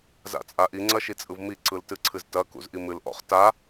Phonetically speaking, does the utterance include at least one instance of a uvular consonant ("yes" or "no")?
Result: yes